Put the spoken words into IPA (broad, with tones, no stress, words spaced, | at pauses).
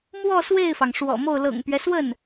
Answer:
mwɔ˥˧ swe˥˩ɪ̯fɑ˩ŋ ʂwɔ̰˨˩mo˥˩ʊ̯ lɤ̰˨˩ŋpɥɛ˦swə˥˩n